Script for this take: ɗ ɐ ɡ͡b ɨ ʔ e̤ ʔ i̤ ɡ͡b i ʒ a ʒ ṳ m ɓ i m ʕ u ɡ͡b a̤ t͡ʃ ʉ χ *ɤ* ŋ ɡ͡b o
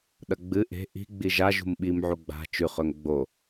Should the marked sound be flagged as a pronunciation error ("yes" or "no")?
yes